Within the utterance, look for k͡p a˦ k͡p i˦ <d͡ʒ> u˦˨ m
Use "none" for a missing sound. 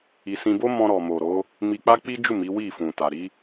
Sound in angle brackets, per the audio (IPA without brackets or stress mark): d͡ʒ